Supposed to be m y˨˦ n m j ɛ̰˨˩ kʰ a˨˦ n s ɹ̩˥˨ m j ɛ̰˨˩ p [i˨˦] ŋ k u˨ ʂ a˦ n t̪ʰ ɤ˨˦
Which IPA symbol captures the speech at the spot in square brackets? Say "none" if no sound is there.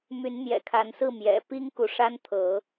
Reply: i˦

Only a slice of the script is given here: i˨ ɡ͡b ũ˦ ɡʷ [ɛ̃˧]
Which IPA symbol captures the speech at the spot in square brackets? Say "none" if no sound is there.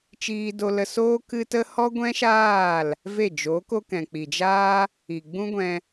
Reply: ɛ̃˧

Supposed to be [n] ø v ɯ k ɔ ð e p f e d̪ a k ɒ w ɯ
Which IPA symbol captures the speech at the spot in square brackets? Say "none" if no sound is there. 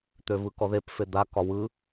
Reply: t̪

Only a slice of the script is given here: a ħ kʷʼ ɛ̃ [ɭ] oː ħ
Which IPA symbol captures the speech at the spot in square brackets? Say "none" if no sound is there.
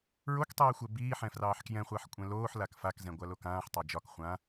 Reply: l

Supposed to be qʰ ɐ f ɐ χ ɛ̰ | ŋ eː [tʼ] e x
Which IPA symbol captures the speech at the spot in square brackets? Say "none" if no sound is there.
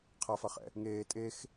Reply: tʼ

